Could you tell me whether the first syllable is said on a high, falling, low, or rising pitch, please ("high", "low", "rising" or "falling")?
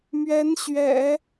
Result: rising